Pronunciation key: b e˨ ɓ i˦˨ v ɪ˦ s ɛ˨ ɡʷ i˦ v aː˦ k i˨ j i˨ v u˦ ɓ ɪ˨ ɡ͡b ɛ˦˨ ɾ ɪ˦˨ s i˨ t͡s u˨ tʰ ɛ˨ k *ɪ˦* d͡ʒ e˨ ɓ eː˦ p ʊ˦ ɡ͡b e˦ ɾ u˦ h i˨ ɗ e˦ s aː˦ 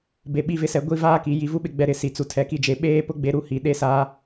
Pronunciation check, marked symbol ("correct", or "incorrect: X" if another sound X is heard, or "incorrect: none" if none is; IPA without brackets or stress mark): incorrect: i˦